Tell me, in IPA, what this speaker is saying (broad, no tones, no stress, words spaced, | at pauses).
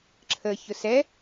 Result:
ǁʰə çʊsɛ